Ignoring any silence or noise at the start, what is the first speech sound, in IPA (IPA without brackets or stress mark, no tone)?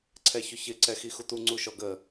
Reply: ǀʰ